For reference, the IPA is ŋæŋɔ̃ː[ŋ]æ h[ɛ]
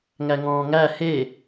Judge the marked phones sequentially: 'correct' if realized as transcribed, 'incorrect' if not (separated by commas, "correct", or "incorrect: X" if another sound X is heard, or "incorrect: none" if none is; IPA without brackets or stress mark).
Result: correct, incorrect: e